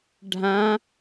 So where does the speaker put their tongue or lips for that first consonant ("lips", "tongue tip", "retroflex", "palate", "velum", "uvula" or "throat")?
retroflex